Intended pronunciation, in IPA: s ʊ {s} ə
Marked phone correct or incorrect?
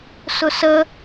correct